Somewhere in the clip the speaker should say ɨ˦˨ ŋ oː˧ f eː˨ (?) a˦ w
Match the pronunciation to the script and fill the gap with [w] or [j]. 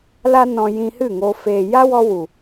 j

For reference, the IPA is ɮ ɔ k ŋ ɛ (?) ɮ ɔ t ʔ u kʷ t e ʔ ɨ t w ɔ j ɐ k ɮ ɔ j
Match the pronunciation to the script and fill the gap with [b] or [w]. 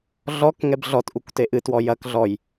b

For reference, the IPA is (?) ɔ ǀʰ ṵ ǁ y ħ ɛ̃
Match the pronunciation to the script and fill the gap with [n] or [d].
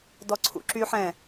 d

